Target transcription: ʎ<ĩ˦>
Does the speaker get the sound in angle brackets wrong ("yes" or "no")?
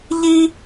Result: yes